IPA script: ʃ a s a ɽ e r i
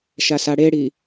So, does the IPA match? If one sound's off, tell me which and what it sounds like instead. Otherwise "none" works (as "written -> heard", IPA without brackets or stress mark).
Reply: r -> ɽ